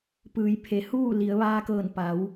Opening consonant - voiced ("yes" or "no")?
no